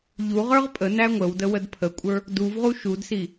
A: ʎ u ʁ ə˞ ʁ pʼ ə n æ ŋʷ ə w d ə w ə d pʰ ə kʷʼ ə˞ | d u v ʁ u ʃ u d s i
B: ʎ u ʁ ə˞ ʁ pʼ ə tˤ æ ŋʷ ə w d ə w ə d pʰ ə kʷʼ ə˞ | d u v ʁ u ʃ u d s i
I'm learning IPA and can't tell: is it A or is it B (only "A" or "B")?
A